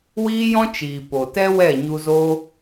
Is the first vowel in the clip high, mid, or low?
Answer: high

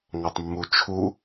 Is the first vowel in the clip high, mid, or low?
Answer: low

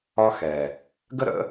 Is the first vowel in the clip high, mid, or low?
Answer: low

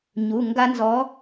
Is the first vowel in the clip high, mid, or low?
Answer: high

